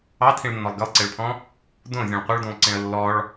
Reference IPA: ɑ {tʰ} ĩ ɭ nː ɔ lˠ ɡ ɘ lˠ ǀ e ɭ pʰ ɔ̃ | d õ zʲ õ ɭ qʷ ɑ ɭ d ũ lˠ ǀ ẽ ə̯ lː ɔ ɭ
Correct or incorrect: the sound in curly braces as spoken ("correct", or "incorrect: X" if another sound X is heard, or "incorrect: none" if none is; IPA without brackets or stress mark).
correct